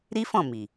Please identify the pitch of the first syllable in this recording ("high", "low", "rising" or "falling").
high